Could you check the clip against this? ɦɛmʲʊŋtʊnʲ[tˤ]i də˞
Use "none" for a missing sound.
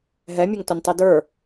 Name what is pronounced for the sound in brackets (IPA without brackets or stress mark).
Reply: tˤ